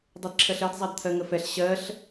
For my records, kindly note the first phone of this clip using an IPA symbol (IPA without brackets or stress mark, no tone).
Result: dˤ